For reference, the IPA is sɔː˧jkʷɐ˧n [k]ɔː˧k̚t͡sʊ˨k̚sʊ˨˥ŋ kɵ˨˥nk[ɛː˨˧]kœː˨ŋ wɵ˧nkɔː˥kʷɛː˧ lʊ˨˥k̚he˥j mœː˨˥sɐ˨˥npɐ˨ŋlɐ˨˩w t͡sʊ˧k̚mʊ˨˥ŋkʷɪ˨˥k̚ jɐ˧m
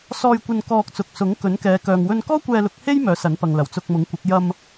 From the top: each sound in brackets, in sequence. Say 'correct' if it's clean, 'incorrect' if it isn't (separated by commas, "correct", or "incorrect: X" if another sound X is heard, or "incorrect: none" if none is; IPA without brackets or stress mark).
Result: correct, correct